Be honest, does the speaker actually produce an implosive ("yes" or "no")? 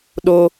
yes